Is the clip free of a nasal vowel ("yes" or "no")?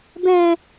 no